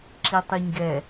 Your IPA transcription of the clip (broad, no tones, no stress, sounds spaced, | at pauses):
ǁ i tˤ ɨ ɲ ɡ ɛ